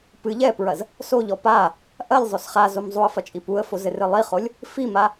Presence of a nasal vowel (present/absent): absent